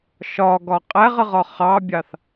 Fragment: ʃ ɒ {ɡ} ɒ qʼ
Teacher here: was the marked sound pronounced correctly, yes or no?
yes